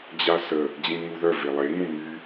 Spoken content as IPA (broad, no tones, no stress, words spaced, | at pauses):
d͡ʑasə | d͡ʑĩŋuðœ velˠe ŋũmy